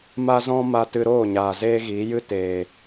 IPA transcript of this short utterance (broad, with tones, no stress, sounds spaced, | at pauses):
m a˦ z ɔ̃˦ m a˦ t ɨ˧ ɾ oː˦˨ ɲ aː˨ z eː˦ ɣ iː˨˦ j ɨ˦ t eː˨